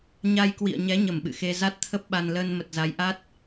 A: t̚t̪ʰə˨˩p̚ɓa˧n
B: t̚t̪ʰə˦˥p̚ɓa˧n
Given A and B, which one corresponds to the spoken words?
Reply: B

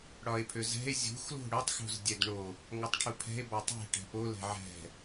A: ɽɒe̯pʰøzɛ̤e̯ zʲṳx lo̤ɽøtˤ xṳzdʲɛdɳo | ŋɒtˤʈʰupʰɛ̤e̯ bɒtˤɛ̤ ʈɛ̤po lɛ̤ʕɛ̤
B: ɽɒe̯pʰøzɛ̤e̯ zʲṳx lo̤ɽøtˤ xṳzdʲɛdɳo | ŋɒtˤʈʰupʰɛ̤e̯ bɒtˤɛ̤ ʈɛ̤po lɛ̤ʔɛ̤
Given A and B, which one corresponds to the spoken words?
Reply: A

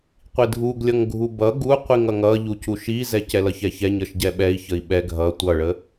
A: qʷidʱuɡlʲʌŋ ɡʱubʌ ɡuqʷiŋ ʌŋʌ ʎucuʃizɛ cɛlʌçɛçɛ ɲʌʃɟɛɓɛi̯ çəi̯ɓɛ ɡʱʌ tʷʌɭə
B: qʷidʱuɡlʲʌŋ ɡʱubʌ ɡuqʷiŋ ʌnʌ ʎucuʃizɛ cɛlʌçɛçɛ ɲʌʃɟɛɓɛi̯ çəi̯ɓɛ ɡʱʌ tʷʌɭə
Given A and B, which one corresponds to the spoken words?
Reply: A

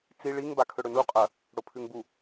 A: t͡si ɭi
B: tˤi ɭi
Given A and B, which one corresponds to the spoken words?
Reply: A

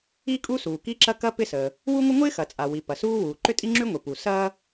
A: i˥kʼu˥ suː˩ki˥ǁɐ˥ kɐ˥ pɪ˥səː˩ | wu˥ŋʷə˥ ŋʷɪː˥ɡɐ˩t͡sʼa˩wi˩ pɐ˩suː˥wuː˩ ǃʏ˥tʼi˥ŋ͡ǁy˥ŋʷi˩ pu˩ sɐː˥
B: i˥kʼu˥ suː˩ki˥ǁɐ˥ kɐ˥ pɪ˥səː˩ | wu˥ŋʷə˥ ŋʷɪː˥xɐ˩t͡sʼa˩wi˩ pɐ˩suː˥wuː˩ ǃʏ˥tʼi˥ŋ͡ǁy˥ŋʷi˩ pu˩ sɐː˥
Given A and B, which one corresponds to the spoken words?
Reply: B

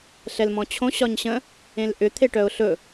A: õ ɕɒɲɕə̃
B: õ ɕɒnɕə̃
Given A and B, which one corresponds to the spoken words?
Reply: A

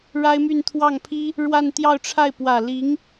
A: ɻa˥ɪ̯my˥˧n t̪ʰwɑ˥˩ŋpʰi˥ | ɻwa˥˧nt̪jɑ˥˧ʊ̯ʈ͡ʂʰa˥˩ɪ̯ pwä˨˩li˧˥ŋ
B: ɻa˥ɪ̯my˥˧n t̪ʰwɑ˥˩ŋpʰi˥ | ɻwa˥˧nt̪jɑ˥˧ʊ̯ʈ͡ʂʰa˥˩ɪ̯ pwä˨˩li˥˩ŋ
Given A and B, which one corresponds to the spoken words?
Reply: A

